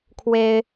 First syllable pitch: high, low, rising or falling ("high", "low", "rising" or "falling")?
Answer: high